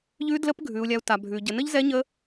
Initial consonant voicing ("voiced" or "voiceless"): voiced